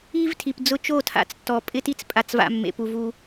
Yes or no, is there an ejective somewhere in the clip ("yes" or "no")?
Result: yes